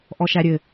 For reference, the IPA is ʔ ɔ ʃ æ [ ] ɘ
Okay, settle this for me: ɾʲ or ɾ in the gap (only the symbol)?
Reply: ɾʲ